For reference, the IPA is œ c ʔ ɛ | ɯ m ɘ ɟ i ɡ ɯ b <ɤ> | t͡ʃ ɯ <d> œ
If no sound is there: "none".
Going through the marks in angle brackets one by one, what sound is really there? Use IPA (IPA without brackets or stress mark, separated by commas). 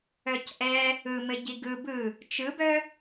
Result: ɯ, b